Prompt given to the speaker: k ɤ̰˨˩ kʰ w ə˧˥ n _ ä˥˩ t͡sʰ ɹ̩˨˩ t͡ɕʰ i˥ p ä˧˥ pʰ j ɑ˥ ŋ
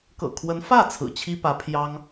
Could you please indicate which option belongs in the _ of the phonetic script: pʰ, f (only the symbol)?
f